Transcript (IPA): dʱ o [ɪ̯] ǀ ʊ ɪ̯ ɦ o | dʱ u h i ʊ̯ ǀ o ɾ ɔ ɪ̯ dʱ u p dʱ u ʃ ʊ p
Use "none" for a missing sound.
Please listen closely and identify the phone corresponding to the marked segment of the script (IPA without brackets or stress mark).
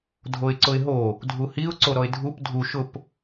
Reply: ɪ̯